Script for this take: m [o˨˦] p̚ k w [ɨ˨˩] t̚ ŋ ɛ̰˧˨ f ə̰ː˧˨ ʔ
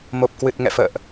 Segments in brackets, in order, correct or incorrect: incorrect: o˨˩, correct

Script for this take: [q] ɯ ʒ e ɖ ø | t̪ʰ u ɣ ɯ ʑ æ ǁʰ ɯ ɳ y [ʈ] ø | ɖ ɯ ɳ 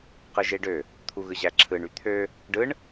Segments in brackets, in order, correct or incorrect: correct, incorrect: t̪ʰ

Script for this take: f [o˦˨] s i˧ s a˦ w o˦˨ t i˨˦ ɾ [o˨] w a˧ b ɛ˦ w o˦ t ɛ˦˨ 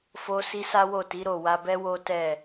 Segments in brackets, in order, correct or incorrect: incorrect: o˧, incorrect: o˦˨

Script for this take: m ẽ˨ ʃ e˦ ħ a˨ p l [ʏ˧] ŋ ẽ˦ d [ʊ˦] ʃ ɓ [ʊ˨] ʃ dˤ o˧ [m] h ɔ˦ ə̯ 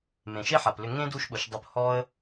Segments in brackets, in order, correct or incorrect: correct, incorrect: u˦, correct, incorrect: p

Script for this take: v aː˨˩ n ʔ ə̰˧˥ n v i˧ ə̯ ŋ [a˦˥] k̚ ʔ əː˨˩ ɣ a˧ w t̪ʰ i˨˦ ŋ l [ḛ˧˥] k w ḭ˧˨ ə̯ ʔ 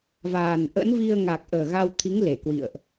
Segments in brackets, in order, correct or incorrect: incorrect: a˨˩, incorrect: e˧˩

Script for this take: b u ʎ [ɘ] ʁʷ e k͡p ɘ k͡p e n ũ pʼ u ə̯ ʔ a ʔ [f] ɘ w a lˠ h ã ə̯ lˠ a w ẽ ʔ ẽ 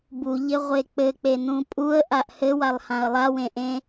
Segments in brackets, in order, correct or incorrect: correct, incorrect: h

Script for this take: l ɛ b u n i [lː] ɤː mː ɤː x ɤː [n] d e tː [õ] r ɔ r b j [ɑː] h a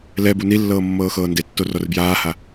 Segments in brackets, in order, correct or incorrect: correct, correct, incorrect: o, incorrect: aː

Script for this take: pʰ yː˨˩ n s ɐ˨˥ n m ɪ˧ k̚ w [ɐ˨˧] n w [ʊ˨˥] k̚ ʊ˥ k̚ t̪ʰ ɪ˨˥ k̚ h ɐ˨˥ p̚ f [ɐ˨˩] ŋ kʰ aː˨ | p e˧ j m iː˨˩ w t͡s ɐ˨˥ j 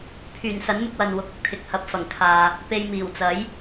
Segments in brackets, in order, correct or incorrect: incorrect: ɐ˨, correct, correct

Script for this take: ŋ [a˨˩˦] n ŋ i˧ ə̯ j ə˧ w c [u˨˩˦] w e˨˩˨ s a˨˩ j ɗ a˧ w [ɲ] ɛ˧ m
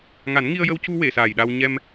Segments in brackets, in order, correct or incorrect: correct, incorrect: u˧, correct

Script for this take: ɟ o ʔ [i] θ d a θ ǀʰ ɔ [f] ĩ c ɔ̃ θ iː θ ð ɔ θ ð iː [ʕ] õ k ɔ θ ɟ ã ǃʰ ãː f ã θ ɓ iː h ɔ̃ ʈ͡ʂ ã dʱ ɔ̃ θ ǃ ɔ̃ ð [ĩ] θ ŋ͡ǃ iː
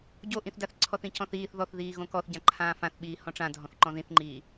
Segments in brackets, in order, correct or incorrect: incorrect: ĩ, incorrect: θ, incorrect: ɣ, correct

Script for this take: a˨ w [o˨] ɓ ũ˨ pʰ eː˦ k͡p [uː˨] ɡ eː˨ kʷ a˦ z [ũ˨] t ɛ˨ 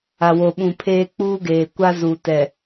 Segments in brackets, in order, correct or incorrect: correct, incorrect: uː˦, incorrect: u˨

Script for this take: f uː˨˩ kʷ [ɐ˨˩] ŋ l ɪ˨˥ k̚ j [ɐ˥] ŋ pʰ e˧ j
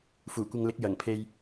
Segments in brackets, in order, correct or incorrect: incorrect: ɐ˧, incorrect: ɐ˨˩

